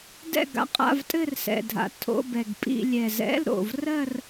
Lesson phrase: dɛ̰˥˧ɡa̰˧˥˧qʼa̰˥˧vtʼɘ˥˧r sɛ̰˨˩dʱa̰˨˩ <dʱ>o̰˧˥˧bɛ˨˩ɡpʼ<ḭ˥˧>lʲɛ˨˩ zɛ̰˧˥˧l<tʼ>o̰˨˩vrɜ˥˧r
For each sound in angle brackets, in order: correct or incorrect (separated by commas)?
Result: incorrect, correct, incorrect